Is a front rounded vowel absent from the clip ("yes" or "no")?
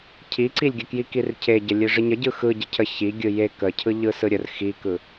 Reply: yes